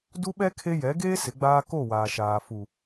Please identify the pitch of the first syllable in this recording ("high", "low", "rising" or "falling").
high